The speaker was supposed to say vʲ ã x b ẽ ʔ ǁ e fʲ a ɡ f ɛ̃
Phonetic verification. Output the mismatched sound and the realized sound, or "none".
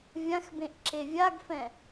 fʲ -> vʲ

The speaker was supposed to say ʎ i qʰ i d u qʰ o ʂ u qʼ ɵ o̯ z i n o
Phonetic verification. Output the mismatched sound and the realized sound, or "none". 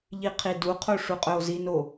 none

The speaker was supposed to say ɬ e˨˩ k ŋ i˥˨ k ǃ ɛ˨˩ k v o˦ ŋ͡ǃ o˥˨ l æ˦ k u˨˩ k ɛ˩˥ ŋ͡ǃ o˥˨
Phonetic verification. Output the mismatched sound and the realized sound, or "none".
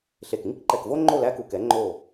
none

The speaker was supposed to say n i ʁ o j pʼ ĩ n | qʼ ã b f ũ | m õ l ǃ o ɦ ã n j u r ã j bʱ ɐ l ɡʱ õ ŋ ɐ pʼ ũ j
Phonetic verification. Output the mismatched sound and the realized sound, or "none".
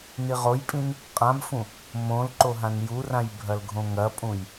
none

